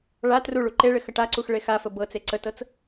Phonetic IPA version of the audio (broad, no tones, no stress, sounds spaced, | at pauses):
ɭ a t r u ɭ u ǃ e ɭ ɪ x ə ʈ a ǀ u x ɭ e x a f ə b ɤ t͡s e ǀ ə t ɤ t͡s